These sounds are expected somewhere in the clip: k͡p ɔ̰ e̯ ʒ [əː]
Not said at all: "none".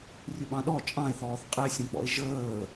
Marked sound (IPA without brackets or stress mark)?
əː